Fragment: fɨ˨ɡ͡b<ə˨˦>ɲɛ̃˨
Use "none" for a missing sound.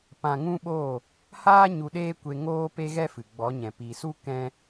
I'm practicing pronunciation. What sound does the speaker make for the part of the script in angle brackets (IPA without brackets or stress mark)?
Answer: ɔ˨˦